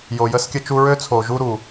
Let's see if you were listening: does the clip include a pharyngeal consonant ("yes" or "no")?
no